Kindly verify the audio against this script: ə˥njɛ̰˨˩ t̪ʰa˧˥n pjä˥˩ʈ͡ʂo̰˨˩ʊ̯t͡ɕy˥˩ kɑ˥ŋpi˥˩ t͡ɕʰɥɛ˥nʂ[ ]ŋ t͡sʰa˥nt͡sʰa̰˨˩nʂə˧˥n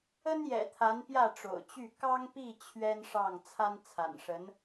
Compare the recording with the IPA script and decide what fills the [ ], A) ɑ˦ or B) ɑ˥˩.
B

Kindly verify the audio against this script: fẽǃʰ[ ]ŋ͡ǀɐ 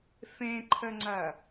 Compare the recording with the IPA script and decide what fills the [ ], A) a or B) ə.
B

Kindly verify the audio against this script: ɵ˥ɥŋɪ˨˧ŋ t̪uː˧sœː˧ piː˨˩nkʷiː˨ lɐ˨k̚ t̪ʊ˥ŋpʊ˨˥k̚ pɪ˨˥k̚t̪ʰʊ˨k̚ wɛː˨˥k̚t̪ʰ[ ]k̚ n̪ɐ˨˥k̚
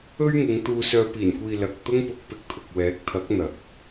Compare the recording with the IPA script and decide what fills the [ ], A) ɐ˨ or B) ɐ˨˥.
B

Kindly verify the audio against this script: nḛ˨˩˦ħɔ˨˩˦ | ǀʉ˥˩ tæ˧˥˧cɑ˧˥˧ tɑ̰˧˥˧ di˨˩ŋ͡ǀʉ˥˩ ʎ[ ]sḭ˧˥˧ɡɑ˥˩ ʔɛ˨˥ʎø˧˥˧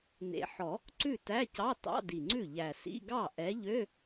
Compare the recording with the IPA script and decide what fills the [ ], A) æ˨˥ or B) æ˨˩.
B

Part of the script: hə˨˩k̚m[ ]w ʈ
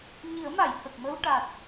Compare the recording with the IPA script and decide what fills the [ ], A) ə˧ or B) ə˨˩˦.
A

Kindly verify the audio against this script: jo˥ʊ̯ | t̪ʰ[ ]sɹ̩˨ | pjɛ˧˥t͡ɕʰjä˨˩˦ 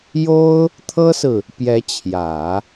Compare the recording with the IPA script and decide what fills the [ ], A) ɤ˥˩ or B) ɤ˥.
B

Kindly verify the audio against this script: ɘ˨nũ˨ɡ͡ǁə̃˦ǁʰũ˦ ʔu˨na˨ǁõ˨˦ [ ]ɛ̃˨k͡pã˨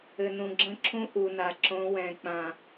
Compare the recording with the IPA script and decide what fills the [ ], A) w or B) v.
A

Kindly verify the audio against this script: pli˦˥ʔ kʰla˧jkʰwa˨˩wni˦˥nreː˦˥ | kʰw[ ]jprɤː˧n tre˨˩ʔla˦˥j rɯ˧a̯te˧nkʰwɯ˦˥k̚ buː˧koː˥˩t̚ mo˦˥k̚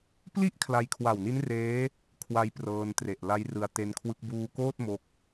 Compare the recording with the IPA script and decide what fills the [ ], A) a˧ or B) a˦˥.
B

